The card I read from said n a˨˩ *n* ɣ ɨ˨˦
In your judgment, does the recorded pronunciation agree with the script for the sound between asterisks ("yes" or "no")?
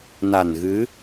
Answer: yes